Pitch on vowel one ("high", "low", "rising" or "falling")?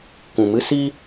low